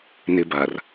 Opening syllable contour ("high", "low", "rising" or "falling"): high